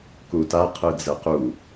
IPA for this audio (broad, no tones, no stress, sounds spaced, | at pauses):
k u t a qʰ ɯ d͡z ɛ q u